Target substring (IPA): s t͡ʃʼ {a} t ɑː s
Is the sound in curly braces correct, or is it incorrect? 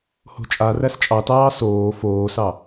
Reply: incorrect